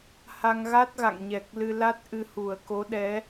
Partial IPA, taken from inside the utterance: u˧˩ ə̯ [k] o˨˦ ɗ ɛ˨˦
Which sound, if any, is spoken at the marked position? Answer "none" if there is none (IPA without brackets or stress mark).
k